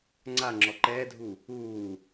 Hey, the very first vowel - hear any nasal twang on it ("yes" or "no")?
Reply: no